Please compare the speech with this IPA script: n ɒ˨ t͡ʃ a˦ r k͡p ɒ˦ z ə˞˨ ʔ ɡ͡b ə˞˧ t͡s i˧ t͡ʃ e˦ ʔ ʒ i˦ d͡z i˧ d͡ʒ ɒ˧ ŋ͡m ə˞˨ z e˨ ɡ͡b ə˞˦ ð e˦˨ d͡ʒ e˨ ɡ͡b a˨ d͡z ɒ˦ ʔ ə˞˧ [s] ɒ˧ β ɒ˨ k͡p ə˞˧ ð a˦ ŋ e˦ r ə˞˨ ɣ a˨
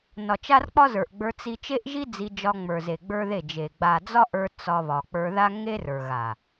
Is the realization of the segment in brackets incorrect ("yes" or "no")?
yes